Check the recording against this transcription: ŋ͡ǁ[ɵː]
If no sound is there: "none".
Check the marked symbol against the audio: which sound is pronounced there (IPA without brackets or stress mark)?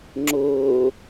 ʊː